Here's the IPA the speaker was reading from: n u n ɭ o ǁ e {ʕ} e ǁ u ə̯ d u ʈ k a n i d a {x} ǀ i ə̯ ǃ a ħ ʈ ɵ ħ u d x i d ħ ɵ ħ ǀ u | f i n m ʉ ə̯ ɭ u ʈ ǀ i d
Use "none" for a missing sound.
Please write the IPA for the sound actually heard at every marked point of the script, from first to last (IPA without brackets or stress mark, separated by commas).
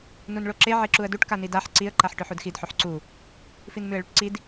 ʕ, ħ